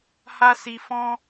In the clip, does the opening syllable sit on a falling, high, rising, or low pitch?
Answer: high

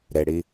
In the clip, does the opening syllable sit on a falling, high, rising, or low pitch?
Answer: low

